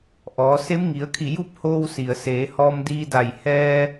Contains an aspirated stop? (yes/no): yes